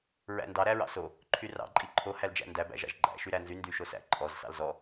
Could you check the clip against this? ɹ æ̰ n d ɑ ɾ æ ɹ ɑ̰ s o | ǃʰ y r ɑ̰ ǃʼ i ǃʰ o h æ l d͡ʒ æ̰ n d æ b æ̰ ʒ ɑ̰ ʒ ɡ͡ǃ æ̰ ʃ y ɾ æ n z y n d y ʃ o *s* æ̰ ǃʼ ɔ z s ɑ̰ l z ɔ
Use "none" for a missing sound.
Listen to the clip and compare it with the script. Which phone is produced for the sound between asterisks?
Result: s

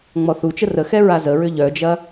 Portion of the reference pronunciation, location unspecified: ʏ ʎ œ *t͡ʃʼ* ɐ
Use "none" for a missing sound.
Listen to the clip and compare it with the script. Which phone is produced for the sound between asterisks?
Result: d͡ʒ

